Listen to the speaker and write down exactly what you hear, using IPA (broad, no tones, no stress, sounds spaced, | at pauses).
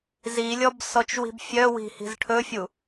z i lʲ ɔ b s ɔ t͡ʃ w i̤ b fʲ œ w i̤ h i̤ z ʈʰ ɵ fʲ u